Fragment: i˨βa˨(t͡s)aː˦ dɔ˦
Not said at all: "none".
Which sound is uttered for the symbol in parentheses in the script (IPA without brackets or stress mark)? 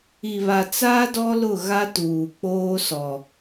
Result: t͡s